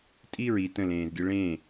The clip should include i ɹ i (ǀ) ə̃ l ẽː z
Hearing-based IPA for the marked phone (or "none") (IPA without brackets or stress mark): t